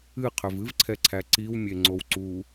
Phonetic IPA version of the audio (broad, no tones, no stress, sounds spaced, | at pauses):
ɨ qʰ ø v ɨ v ǀʰ ɛ ǀʰ æ ǀ i w mʲ e ŋ͡ǀ o w ǀ u